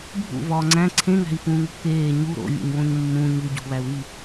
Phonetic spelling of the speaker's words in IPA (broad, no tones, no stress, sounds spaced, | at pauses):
bʱ ṵ v ɒː ŋ͡ǀ æ̃ ǀʰ ẽ ŋ æ̤ i̯ f ũː ŋ o̤ k eː ɲ u ɾ o̰ vʲ ṵ ɲ w õ ɲ mː ũ ɲ u ɟ o̤ β æ u̯ ɣ i